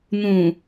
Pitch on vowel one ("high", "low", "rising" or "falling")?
low